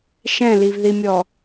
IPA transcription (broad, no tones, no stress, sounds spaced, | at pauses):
ʃ ɛ̃ l i v ð i mʲ ɔ